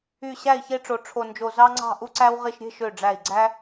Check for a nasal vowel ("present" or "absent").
absent